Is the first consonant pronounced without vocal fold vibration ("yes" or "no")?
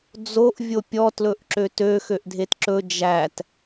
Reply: no